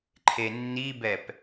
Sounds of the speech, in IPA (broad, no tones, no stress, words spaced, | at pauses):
ǃʰenːibɛp